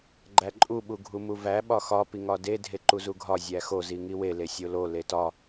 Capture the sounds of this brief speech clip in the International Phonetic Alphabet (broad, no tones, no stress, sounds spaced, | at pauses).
ɡ͡ǃ æ ǃʼ u ɓ u ɡʱ u m u v æ ɓ ɒ x ɒ p i ŋ ɒ d e dʱ e ǃ u z u ɡʱ ɒ zʲ æ x o z i ŋ i w e l e sʲ o l o l e t ɒ